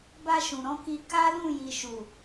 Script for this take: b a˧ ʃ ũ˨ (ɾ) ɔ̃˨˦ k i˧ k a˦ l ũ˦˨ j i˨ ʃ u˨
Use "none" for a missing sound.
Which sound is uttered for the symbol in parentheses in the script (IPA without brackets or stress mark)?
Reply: ɾ